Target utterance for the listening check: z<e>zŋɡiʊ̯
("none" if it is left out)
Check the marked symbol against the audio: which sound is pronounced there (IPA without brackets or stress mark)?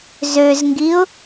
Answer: ø